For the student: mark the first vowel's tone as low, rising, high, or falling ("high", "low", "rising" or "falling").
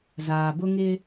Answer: low